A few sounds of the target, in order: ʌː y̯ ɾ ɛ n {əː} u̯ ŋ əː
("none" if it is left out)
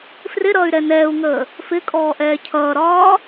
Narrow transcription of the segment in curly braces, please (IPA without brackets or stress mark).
ɛː